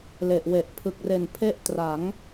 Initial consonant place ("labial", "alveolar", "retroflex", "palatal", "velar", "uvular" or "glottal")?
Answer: alveolar